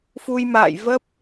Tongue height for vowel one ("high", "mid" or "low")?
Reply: high